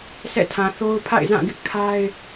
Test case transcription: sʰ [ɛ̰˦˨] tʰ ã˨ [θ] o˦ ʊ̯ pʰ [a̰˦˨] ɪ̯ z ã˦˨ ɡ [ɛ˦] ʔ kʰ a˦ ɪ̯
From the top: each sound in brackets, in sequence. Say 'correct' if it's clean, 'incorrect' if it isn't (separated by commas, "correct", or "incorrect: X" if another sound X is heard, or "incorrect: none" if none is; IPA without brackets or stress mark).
correct, correct, correct, incorrect: ɪ˦